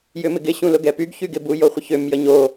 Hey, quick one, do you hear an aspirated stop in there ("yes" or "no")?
no